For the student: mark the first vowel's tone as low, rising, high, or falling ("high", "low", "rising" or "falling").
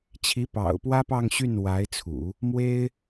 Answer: rising